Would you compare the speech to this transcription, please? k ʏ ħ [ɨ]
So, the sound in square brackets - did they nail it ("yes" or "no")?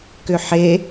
no